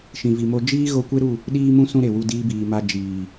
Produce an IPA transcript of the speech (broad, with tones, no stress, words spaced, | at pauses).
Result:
ʃĩ˨vi˨ mo˧ d͡ʒiː˦ ɣo˧kʷe˦ɾu˦˨ | ɗiː˦mũ˦ sũ˦ɾe˨wu˧ diː˧biː˨ma˧ d͡ʒiː˨